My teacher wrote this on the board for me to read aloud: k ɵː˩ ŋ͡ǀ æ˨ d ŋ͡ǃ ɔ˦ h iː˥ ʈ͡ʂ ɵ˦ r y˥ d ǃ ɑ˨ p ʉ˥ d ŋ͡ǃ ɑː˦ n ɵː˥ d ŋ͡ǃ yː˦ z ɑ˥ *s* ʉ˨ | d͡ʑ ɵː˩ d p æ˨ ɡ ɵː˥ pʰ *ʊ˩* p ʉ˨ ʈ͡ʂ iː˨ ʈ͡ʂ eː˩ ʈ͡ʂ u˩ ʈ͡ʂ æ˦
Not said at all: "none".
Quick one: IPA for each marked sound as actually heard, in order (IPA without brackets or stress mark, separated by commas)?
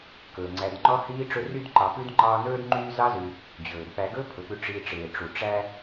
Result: z, ɵ˩